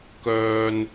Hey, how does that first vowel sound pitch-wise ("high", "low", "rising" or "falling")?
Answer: low